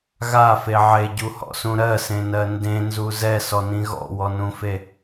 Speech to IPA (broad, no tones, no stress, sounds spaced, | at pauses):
ɣ a f e ʕ e ɟ u h ɔ̰ s ũ ɾ ɜ s ẽ n ɜ n d ẽ n z u z ɛ s ɔ n ĩ ɣ ɔ̰ w ɔ n ũ f e